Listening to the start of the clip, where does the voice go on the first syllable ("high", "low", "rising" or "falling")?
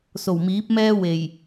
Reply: low